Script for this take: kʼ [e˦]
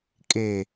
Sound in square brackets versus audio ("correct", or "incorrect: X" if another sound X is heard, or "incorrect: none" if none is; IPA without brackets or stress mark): incorrect: e˨